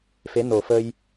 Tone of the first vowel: rising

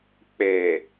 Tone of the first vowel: low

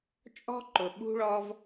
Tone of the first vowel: high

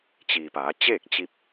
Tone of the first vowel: low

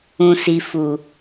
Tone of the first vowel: low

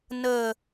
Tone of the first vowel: low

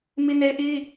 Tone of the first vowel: high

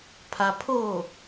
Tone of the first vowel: low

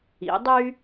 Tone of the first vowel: rising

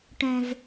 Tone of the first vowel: low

